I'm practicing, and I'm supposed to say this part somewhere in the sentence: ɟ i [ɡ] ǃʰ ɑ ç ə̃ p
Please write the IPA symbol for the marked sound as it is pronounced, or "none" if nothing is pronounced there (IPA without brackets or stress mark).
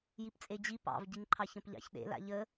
ŋ